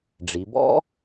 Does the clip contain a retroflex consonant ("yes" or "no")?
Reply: yes